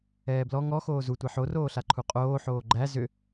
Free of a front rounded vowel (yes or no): no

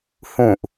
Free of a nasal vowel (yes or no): no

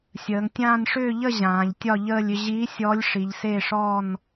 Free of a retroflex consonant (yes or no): no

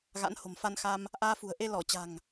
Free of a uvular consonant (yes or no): yes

